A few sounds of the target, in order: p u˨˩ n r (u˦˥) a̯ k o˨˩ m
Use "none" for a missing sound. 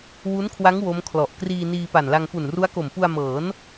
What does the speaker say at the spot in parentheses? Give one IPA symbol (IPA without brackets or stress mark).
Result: u˦˥